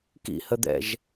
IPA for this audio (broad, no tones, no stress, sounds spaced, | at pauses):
k ḭ h ə d̪ ɛ̰ ʒ